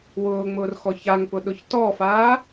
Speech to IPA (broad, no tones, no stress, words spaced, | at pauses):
wʊːŋ͡mʊːrxɔ çaŋpʊɗʊç tɔfaː